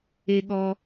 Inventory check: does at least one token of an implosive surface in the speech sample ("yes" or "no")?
yes